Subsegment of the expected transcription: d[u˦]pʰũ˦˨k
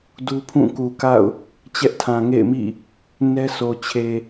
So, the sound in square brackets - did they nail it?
yes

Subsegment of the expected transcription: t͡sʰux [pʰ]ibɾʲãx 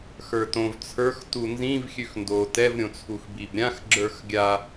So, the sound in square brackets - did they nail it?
no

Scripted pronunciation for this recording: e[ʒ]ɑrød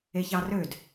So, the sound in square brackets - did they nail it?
no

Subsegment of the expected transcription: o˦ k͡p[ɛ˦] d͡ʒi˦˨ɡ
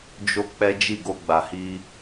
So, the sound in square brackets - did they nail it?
yes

